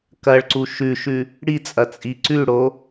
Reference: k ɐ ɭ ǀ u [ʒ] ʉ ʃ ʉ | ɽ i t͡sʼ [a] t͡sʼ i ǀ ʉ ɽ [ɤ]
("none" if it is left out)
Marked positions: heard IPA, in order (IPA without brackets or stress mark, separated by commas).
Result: ʃ, ɐ, o